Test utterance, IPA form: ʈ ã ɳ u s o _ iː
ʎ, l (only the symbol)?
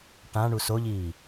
ʎ